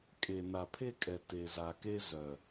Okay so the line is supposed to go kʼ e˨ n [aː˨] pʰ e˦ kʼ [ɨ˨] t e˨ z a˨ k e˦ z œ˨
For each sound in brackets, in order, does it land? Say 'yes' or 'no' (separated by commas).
no, no